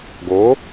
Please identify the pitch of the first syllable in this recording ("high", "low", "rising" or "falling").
rising